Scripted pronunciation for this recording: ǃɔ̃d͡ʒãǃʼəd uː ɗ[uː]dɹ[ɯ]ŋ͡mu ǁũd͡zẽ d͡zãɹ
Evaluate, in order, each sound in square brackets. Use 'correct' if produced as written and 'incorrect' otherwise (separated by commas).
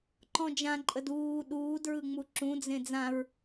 correct, correct